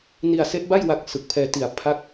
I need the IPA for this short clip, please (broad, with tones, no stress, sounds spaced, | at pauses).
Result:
n i˧ a̯ s e˦˥ ʔ b a˥˩ j w a˦˥ k̚ s ɯ˨˩ k̚ pʰ ɛː˧ t i˨˩ a̯ pʰ a˥˩ k̚